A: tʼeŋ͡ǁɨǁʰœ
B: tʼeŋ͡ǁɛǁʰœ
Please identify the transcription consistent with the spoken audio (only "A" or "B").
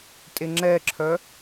B